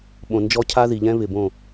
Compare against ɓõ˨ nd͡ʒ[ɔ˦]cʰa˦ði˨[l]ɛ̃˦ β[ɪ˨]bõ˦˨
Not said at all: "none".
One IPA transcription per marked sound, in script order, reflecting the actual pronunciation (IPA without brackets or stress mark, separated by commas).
ɔ˦, ʎ, ɪ˨